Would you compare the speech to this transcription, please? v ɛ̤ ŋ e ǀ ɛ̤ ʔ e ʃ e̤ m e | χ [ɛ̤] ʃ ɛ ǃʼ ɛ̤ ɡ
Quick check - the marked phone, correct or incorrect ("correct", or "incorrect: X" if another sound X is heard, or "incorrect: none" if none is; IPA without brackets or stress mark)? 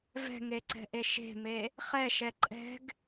incorrect: ɛ